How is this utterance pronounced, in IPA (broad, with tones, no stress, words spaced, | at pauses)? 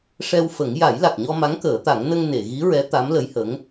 ʂɛ˧wfə˨˩˦ŋ ja˨˩˦jla˨˩k̚ɲɔ˧ ma˧˥ŋkəː˨˩˦t̪a˨˩˦ŋ nə˧ŋ ne˨˩˨ɣi˧˥ɹɛ˧˥ t̪a˧˥mlə˧˥jhə˧˥ŋ